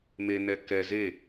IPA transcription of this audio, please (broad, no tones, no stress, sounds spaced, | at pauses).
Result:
m e n ɛ k ɛ z e